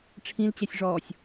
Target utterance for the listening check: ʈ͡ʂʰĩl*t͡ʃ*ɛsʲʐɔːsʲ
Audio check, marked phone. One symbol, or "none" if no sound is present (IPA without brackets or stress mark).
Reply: t͡ɕ